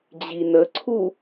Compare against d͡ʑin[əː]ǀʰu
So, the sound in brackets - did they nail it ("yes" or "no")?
no